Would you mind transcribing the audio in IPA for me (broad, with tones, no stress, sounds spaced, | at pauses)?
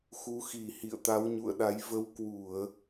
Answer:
x u˨˦ x i˧˩ h ḭ˧˨ ə̯ t̪ a˨˦ w ɲ ṵ˧˨ ə̯ ɗ a˨˦ j v ə˧ w k w u˧˩˨ ə̯